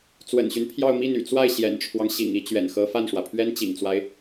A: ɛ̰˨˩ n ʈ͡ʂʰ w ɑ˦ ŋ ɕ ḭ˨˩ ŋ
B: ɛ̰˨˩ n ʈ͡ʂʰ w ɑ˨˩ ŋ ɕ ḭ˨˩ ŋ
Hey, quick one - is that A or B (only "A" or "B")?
A